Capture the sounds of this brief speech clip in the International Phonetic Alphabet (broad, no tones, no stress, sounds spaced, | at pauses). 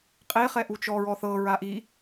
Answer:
qʼ e χ ɛ ʔ u t͡ʃ ɔ ɹ ɔ θ ɤ ɹ a ʔ i